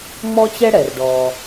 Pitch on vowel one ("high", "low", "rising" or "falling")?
high